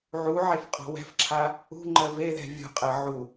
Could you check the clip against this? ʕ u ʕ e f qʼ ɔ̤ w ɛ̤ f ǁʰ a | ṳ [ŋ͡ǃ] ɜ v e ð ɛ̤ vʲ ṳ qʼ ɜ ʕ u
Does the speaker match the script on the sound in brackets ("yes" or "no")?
yes